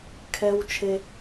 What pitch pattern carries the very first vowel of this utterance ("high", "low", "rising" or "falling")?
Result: high